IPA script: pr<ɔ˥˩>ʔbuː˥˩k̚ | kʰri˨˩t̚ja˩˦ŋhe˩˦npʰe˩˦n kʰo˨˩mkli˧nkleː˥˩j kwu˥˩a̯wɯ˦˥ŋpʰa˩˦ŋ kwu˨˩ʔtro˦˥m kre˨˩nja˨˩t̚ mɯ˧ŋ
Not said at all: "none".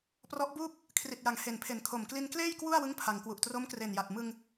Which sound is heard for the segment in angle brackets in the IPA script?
ɔ˦˥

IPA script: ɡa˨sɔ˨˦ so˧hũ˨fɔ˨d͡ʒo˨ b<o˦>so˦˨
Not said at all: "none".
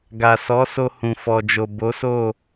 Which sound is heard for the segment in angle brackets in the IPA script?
o˨˦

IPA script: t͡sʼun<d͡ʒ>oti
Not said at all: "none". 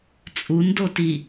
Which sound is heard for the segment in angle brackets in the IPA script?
d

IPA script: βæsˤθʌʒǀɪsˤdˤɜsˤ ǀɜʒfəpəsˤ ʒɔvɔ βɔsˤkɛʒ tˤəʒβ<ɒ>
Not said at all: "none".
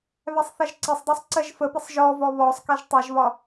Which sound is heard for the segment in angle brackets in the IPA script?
ɒ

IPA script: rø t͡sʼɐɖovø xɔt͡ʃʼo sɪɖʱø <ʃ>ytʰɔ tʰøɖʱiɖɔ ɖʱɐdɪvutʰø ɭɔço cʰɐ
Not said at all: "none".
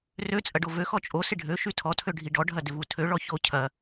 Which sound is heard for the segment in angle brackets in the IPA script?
ʃ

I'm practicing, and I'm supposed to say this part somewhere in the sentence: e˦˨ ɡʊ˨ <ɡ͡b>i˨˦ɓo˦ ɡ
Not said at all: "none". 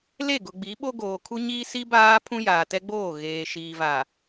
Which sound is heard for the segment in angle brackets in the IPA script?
ɡ͡b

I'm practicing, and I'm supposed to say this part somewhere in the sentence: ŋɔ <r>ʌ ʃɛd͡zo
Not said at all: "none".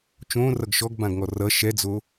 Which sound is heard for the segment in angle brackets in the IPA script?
r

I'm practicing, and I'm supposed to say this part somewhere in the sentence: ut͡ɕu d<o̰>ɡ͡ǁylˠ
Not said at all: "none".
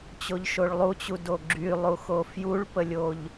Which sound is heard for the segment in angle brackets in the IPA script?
o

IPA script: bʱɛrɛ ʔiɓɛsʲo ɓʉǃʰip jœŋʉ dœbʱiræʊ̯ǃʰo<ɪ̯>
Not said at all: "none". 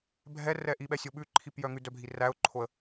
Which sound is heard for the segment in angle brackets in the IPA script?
ə̯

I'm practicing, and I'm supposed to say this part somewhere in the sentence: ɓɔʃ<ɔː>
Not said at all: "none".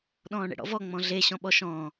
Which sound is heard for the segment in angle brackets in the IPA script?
ɔ̃ː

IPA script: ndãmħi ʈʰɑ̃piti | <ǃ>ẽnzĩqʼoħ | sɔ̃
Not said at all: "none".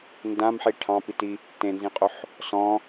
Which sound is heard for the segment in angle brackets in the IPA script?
t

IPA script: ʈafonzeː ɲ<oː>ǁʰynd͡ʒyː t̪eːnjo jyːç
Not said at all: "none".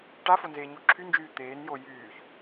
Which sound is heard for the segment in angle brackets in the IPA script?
o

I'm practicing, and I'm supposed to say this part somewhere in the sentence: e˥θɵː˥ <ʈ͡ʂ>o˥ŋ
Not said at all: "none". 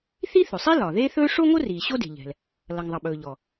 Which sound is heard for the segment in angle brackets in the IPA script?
ʂ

